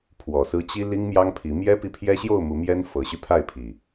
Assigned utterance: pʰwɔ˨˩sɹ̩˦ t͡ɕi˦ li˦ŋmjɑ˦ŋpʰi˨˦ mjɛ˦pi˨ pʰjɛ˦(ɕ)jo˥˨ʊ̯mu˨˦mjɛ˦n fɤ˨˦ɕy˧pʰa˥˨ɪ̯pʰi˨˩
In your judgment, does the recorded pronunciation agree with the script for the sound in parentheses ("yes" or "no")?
yes